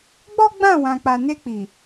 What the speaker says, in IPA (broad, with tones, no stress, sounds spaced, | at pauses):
ɡ͡b ɔ˦ ɡ͡b ã˦˨ w ã˨ k͡p a˨ n e˧ k͡p i˨